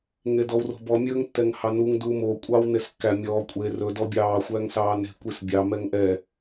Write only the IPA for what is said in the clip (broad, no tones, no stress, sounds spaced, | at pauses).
ŋ e d ɔ w r o̤ b ɔ mʲ ɵː ŋ tː ɛ ŋ h ɑ n u ŋ d uː m o kʷʼ ɑː w n e s kː æ mʲ ɔː kʷʼ e r ɵ d ɔ bʲ ɑː xʷ æː ŋ s ɑː n e̤ kʷ i s bʲ ɑ m ɛ ŋ ʔ ɛ